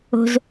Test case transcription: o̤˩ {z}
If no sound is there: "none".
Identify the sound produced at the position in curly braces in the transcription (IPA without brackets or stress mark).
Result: z